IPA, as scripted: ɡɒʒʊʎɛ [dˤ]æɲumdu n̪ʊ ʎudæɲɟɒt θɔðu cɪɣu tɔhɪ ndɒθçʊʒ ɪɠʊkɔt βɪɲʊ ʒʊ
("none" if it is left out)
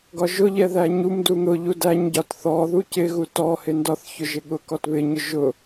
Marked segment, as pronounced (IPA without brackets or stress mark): ð